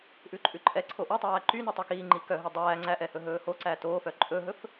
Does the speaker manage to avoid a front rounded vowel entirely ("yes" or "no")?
no